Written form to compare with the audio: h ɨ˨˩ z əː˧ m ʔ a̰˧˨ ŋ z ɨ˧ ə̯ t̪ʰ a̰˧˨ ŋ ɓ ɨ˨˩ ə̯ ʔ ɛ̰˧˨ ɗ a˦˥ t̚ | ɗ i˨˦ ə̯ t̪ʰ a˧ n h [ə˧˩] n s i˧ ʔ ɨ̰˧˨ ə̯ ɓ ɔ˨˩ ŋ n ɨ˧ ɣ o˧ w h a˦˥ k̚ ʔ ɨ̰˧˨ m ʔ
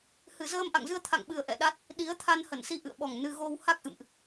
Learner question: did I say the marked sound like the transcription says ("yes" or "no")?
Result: yes